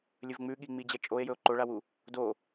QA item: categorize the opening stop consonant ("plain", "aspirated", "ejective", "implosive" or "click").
implosive